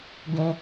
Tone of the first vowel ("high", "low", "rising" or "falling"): high